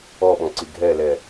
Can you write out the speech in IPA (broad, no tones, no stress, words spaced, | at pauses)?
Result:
ɔɓɔ̃ǀi ɡʱɛlɛ